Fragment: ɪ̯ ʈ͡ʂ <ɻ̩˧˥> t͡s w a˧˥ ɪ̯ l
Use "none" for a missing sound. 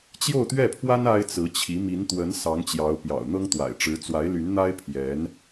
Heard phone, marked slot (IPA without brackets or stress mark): ɻ̩˧˥